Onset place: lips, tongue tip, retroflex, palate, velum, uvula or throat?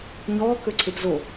palate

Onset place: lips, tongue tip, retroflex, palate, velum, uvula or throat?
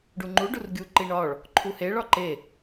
retroflex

